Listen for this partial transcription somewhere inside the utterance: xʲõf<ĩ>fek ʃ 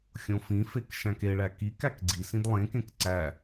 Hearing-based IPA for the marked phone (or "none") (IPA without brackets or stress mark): ĩ